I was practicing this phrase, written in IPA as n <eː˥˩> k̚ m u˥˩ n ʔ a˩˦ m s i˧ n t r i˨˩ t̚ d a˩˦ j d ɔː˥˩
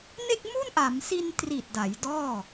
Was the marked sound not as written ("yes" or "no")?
yes